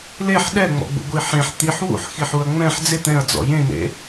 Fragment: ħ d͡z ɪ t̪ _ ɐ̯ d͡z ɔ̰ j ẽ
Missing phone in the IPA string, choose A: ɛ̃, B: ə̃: A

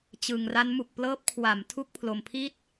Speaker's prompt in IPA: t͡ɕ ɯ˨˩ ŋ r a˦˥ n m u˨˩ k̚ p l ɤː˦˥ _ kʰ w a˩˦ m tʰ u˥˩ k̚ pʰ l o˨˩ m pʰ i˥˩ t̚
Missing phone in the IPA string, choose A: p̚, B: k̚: A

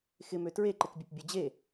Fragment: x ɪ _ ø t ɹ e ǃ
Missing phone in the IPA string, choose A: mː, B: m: B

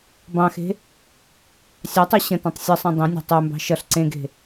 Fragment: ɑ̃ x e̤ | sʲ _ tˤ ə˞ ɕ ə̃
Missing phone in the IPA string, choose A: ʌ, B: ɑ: B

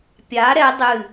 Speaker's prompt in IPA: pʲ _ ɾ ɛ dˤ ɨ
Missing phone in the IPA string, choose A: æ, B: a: B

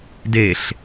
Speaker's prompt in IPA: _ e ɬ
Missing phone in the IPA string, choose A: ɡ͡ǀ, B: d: B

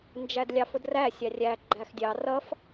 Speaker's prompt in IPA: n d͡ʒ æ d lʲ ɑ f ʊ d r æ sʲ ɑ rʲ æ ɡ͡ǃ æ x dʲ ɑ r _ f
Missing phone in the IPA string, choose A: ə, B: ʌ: B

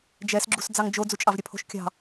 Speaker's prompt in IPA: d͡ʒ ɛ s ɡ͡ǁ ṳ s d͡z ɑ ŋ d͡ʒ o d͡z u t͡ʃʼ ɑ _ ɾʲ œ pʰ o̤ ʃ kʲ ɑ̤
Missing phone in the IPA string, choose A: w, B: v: B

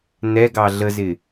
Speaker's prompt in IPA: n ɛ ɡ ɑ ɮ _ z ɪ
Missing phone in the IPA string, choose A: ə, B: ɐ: A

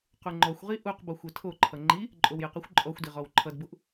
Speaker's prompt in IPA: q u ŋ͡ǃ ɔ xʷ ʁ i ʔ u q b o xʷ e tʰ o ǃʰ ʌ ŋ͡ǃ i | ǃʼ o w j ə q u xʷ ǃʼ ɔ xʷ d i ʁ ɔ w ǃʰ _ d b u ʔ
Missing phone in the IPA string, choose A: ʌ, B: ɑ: A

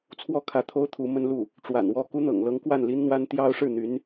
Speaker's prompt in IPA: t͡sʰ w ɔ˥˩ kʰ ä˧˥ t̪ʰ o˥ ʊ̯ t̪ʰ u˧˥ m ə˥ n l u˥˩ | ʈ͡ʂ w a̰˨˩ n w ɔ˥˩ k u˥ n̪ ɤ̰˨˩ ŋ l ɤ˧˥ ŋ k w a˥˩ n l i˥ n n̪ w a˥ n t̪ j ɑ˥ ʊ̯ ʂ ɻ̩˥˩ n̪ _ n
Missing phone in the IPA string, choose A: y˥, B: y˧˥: B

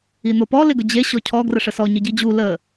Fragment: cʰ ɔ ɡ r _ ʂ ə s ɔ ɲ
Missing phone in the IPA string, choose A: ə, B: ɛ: A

